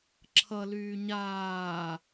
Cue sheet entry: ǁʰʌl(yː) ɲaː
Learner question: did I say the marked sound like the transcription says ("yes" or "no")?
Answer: yes